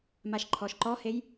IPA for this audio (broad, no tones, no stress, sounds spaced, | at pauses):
m a ʃ ǃʰ ɔ ʃ ǃ ɔ h e j